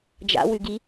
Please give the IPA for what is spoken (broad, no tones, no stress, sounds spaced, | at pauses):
d͡ʒ a̰ w ʉ ɡ i